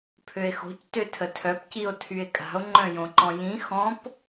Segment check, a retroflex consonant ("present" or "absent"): absent